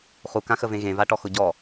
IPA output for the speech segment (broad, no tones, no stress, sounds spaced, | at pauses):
χ u k ã x ə v ẽ ɣ ẽ v a ʈ ɔ x ʊ ɟ ɔ